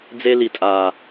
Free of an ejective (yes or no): no